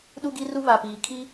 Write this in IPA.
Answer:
ɗ u˦ ɡ i˦ r u˦ β a˨ p iː˨ kʰ i˦

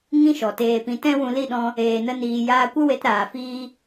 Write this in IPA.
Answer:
ŋ ĩ˦ ʃ ɔ˨ t eː˧ p ĩ˧ t ɛ̃˦ w ũ˧ l i˦˨ ɗ ɔ̃˧ | eː˨ n ə˧ n iː˨ j aː˧ kʷ ə˦ w e˧ t ɾ aː˨ f iː˧

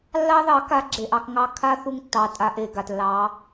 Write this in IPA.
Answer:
lː ɑ˦ ð ɑ˨˦ k a˦ ɡ͡ǁ e˨ ʔ ɑ˧ k ŋ ɑ˦ kʰ a˦ θ u˧ ŋ tː ɑ˨ tʼ a˧ ʔ e˨ ɡ a˨ t lː ɑ˨˦

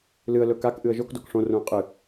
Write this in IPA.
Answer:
l ɨ ə̯ l ɵ k a k ʔ ɨ ə̯ ʒ o k d o k ʂ õ r ũ ə̯ qʼ ɨ

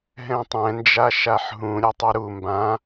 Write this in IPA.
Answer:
ɦ ɛ̃ tˤ ɛ̃ n d͡ʒ a ʃ a ħ ɦ ũ ɾʲ ɛ tˤ i ɾ u m b ã

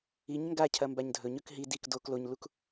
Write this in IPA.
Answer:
i ɲ ŋ ɡ a cʰ ɐ m b a ɲ dʱ ɵ ɲ ɵ k ɦ i d i k d o k l o ɲ l u k

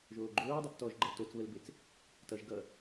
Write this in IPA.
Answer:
ʒ oː ɡ͡ǃ oː dˤ e p t ɔ ʒ ɡ͡ǃ ʌ l t o t͡s β ə l b e t͡s | t ʌ ʒ ɡ ʌ

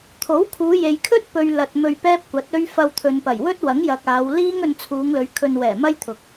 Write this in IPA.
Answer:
t̪ʰ o˨˥ w kʰ uː˨˧ j e˨ j kʰ ɵ˥ t̚ p ɵ˨ ɥ l ɐ˨ t̚ m ɵ˧ ɥ p ɛː˥ p̚ kʷ ɐ˨˥ t̚ ɵ˥ ɥ f ɐ˧ w t̪ʰ ɵ˨ n p ɐ˨˩ j w ɵ˥ t̚ w ɐ˨˥ ŋ j ɐ˨ k̚ aː˨˧ w l iː˥ ŋ ɵ˧ n t͡sʰ uː˨˧ ŋ l ɵ˨˧ ɥ kʰ ɵ˧ n w ɛː˨˩ m ɐ˥ j t̪ʰ ʊ˨ k̚

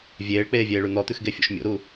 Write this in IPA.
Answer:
vʲ eː ɭ k͡p eː vʲ eː ɭ ʉ n̪ ɔ t̪ ʉ x ɡ e fʲ o̰ ʃ mʲ o̰ ɾ u

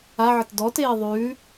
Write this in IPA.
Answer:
a ʕ ə t d ɔ t eː ðˤ ʉː

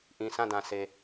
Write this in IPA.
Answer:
ʔ ĩ˨ s ã˦˨ d ã˨ s e˨

